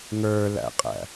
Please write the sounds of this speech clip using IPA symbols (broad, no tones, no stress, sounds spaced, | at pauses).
ŋ ə˞ l æ̰ qʼ æ̰